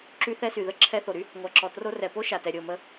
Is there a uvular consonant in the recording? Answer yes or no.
no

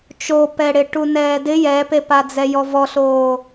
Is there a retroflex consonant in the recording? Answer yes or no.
yes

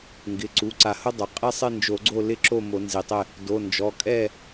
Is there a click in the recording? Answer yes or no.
yes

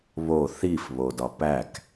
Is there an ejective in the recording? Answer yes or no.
no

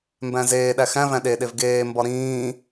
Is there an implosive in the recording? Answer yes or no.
yes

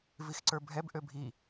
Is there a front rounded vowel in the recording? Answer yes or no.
yes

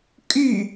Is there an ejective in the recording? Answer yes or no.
yes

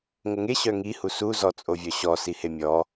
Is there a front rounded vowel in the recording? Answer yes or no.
yes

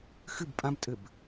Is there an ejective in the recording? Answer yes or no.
yes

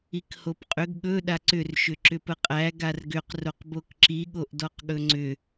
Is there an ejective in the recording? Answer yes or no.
yes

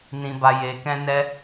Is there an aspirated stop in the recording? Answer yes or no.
no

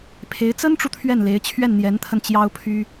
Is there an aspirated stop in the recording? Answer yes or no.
yes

